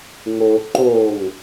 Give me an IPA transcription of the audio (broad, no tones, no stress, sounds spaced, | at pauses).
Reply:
ŋ o ǃ o ŋ